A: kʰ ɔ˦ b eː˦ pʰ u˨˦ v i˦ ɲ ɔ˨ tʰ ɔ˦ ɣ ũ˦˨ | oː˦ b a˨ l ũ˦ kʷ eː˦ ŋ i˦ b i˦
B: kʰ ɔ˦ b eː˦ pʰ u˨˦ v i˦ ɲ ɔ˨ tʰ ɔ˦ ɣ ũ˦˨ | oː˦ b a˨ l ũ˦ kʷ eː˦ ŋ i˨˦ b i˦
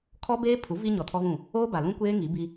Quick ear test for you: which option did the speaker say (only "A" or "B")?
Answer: B